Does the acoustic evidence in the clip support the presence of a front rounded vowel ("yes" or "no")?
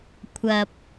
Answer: no